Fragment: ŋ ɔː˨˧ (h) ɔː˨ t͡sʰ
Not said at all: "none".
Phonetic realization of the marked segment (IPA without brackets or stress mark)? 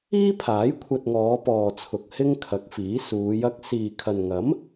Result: p